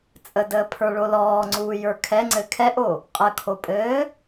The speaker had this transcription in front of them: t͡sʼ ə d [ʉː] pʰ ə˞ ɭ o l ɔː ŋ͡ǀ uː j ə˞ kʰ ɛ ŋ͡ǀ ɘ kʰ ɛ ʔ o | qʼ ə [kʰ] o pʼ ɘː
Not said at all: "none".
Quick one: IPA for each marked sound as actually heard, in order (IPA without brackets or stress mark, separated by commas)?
əː, kʰ